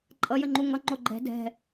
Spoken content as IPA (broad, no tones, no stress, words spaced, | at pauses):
ǃʼʌjəŋ͡ǃu ŋʌŋ͡ǃo ɡ͡ǃɛ̤ dɛ̤